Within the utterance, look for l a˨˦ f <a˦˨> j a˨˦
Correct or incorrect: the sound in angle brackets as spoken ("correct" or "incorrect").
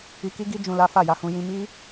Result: correct